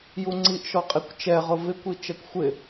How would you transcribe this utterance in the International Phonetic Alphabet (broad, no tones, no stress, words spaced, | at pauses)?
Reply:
juŋ͡ǀiʔʃɔ qʼikʷt͡ʃɛʁʊ vɪkʷi t͡ʃɛkʷxʷɪ